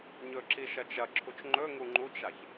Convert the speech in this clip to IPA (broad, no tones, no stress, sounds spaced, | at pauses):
ɲ ɵ ǁ i ʃ ɐ t͡ʃ ɐ ǁʰ u t͡ʃ ŋ͡ǃ ɵ ŋ u ŋ͡ǃ u t͡ʃ a ç